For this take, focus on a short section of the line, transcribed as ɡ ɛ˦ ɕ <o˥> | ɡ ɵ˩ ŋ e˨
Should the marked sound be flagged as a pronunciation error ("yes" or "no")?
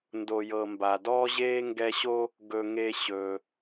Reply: no